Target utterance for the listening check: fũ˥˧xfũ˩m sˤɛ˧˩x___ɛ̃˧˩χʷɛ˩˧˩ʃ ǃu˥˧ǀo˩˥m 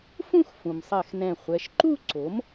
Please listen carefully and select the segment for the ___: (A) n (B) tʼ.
A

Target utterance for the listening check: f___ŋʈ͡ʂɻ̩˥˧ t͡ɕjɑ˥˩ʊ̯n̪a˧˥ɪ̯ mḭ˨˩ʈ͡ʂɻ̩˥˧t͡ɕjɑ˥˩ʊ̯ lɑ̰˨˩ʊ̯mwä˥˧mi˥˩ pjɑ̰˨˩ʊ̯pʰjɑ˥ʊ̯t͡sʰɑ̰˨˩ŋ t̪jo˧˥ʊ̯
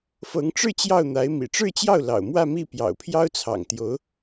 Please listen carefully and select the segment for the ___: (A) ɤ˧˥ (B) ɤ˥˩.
A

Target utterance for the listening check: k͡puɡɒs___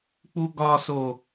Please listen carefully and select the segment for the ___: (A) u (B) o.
B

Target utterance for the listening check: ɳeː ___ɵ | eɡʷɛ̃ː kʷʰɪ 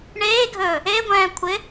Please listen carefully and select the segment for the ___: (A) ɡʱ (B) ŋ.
A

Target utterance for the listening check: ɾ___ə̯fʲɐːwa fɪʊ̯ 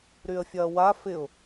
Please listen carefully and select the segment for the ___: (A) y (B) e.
A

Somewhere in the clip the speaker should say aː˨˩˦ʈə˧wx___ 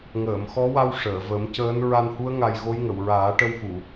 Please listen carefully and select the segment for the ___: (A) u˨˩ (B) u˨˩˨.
B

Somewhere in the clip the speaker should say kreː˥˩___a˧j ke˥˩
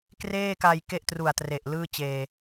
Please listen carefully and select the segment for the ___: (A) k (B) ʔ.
A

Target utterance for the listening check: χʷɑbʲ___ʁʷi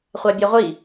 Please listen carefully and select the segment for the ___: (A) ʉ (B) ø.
B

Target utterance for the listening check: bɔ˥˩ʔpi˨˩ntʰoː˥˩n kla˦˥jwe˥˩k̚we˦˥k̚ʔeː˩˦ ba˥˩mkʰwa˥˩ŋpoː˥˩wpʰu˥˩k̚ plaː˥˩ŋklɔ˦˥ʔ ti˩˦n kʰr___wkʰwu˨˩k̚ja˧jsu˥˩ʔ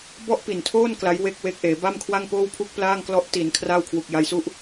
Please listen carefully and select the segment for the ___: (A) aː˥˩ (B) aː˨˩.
A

